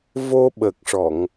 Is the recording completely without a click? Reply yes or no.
yes